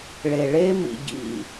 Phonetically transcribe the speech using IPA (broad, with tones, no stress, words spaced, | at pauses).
ɭe˨ɭe˦ mḭ˧ ɟḭ˦˨